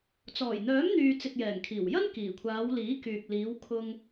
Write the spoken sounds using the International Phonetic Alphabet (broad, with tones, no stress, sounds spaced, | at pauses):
t͡s ɔː˨˩ j n̪ œː˨˥ m n̪ yː˨ t͡s ɪ˨ k̚ j ɛː˨˩ ŋ kʰ iː˨˩ w j ɐ˥ n k iː˨˩ kʷʰ aː˨˧ w l iː˨˥ k yː˨ k̚ l iː˨˧ w kʰ ʊ˧ ŋ